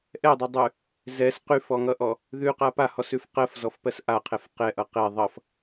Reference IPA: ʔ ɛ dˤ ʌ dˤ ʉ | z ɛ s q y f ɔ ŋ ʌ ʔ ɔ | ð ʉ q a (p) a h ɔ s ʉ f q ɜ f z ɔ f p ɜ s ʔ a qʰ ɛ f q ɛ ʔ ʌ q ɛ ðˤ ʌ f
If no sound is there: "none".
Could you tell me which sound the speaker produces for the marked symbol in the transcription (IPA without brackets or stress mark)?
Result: p